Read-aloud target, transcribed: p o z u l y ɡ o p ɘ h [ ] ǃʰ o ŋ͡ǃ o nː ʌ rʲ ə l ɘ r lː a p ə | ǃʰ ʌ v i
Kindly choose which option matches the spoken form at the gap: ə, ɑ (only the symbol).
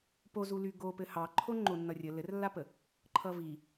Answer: ɑ